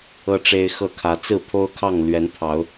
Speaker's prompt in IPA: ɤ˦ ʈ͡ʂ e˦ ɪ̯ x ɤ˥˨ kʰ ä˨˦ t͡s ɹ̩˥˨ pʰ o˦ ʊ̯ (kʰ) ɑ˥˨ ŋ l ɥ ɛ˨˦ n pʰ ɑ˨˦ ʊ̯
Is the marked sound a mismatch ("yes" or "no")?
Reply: no